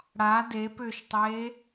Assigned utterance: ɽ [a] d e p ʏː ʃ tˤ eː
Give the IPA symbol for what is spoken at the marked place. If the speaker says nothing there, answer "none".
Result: a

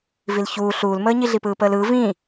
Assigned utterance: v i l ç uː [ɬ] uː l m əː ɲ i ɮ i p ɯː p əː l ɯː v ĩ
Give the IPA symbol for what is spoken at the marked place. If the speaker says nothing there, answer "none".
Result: ɬ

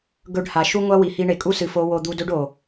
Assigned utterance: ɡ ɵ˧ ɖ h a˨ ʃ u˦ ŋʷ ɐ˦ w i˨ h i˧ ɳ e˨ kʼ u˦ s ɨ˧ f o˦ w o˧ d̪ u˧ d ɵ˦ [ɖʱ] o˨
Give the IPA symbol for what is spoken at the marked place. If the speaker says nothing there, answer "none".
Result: ɖ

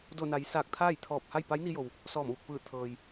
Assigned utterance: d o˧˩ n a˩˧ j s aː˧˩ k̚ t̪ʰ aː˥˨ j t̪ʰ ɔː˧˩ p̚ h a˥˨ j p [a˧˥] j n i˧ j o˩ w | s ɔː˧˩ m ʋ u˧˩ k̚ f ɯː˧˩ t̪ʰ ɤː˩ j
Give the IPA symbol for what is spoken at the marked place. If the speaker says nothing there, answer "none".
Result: a˧˥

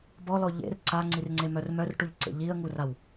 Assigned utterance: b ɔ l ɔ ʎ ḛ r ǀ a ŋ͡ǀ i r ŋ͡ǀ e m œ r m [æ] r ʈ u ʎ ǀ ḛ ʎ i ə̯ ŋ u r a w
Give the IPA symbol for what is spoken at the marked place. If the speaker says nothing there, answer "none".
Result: œ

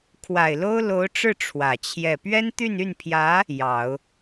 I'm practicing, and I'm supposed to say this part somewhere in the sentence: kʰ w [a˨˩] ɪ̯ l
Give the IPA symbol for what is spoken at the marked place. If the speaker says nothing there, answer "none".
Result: a˨˩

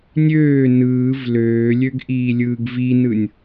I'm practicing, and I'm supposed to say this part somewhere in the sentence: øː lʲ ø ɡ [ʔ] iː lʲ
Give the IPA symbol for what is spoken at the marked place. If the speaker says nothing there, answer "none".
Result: ʔ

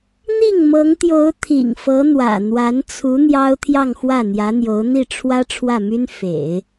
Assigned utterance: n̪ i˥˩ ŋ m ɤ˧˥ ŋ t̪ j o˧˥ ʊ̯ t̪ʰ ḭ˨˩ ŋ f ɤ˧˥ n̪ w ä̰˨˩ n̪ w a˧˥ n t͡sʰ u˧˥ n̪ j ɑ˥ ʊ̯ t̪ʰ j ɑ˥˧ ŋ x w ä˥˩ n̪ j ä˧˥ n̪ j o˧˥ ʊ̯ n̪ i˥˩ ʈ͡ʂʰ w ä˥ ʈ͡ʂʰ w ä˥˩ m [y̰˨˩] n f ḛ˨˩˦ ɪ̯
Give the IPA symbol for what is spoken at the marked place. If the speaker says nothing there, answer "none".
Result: y˥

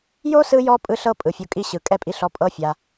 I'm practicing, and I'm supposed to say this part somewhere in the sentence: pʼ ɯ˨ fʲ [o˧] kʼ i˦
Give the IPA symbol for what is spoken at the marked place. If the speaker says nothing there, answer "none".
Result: o˧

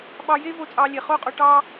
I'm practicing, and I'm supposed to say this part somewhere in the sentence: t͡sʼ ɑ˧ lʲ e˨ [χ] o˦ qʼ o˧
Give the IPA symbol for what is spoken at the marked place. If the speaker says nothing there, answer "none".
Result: χ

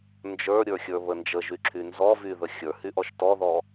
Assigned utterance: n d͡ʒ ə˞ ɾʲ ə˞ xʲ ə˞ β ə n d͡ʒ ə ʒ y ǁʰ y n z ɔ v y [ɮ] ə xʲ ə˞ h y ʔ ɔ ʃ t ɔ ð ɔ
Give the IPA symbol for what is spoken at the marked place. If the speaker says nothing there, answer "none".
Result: ð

